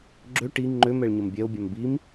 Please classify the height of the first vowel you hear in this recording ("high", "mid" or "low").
mid